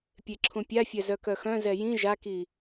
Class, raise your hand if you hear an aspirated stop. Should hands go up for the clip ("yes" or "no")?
yes